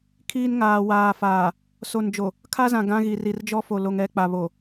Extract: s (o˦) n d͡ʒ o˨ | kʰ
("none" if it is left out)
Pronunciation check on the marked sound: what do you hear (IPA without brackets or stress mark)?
o˨